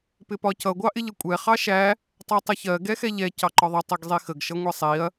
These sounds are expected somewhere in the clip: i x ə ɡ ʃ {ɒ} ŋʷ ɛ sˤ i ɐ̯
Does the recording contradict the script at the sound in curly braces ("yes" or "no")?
yes